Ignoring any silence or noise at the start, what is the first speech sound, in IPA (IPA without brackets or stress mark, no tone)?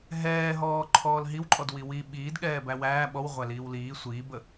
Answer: ɦ